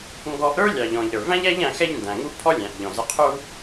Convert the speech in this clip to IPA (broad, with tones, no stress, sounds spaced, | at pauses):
ŋ ɡ ɔ˧ ʔ ɾ ə˞˥ lʲ ɑ˩ ʎ ɔ̃˩ ʎ ɾ ə˞˩ v æ̃˥ ʎ æ˥ ʎ æ̃˧ x ɛ˥ ʎ n d æ̃˩ ŋ u˥ pʰ ɔ˥ lʲ æ̃˩ ʔ ʎ ɔ̃˩ z ə˧ qʰ u˥